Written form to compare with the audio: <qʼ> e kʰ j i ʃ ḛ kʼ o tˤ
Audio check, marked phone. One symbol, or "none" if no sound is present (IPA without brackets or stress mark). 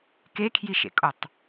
k